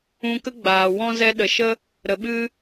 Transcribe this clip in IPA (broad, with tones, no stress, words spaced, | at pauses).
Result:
ũ˧ kə˦ɡ͡baː˨wɔ̃˦ zɛ˧ɗə˨ʃə˦ | ɾə˨ɓɨ˦